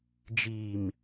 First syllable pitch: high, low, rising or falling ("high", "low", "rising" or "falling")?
low